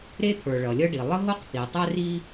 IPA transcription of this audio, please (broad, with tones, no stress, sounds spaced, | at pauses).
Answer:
ɾ e˥ t̪ʰ ə˞˩ ɭ ʌ˩ lʲ ʌ˥ ɖ i˩ lˠ ə˥ ɦ o˥ q t̪ i˩ tˤ ɛ˥ r i˥